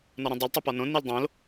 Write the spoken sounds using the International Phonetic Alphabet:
n ɒ ɾ õ dˤ u l tˤ u p ɒ n õ n i l dˤ õ l

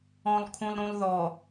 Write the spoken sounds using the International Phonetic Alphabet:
ɔ̃ lˠ kʰ ũ lˠ ɾ ũ lˠ ð ɔ

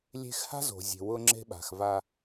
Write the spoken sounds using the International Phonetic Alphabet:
lʲ e̤˦ x h a̤˦ z o̤˨ zʲ e̤˨ w ʊ˦ ŋ͡ǁ e̤˦ ɓ a̤˨ x v a˦

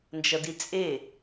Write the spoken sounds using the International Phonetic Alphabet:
n d͡ʒ ʌ d i t͡sʼ e

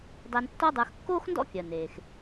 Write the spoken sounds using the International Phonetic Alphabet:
dˤ ɛ˧ n tː ɔ˥ dˤ ə˞˧ x kː oː˥ x n d ɔ̰˥ kʲ ɜ˩ n eː˩ x

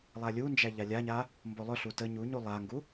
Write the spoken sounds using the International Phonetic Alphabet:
lˠ a lʲ u n d͡ʒ æ ʎ a lʲ a ɲ a | m b o lˠ ɵ ɬ u t ə ɲ u ɲ u lˠ a ŋ ɡ u

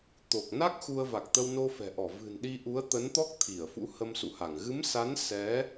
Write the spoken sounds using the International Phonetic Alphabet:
t̪ o˨˩ k̚ n a˦˥ k̚ x u˧ ə̯ v a˨˩ k̚ t̪ ə˧ w n o˧ f ɛ̤˨˩ ʔ ɔ˧˩ v ɨ̤˨˩ n ɗ i˧ ʔ u˨˦ ə̯ t̪ ə˨˦ n t̪ ɔ˦˥ k̚ t̪ʰ i˧˩ ə̯ f ṵ˧˥ h ə˧ m s ṵ˧˨ h a˧˩ ŋ ɣ ɨ˨˦ m s a˨˦ n s ɛ˨˦

